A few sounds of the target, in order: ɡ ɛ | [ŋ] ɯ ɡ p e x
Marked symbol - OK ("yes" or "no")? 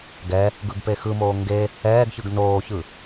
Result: no